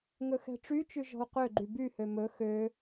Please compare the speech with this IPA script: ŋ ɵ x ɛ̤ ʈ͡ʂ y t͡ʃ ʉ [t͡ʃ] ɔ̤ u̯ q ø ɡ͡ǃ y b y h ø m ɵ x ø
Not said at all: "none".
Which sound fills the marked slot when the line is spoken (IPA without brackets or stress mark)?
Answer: ʒ